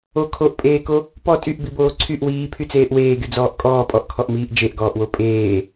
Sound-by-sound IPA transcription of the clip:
o kʰ o ʔ pʼ eː k o | p ɔ tʼ y ʔ b i b oː ǀʰ y ʔ w iː pʰ y t͡s eː ʔ w eː ɡ y d͡z ɔː ʔ kʼ ɔː pʼ ɔ ʔ kʰ ɔ ʔ m iː ʔ d͡ʒ e ʔ ɡ ɔː ʔ w o pʼ eː

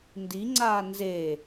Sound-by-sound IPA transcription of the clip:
n d i ŋ͡ǀ aː n z e

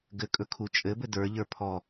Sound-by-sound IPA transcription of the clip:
ɡ ɘ kʼ ɵ kʰ u t͡ʃʼ ɘ b ɘ d ə˞ ʎ ə˞ pʰ ɔ

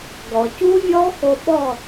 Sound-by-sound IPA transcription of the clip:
ɡ ɔ˩ c u˦˥ vʲ ɔ˦˥ x o˧ ɓ ɔ˥˨

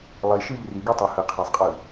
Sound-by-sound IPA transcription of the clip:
lˠ i ʃ ɯ ʎ r i ɡ y tˤ ɯ h ɯ qʰ æ sˤ qʼ ɯ

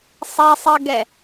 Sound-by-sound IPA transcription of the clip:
sˤ e sˤ ɜ ɡ ɛ

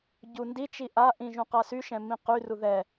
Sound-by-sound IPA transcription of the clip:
ɟ u n d i t͡ʃ i ʔ a ʔ ĩ ʒ ũ q a s y ʃ ɛ̃ m ĩ q y r u ð ɛ

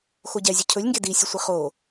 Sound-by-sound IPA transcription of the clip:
x o ɟ ɛ zʲ ʊ cʰ ɵ lʲ ŋ ɡ e d i sʲ ʊ sʷ i χ o

